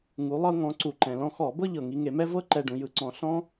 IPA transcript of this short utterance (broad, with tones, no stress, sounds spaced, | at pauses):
ŋ u˩˧ lˠ ɤ˧ ŋ ɔ̃˩˧ ǀ u˩ ǃ ɛ̃˩ l ɔ̃˧ x ɔ˧˩˧ b ɤ˥ ʎ ɤ˩ ŋ i˧ ŋ e˧˩˧ m ɛ˥ v ɤ˥ ǃ ɛ˧ ɖ ũ˩˧ j ɯ˧ ǀ ɔ̃˧ ɬ ɔ̃˥